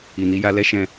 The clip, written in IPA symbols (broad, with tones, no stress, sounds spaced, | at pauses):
i˨ n i˨˦ j a˧ l ɛ˦ ʃ ɛ̃˧